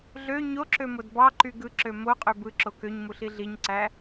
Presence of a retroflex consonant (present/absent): absent